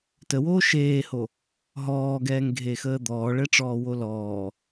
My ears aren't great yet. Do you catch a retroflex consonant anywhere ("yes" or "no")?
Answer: yes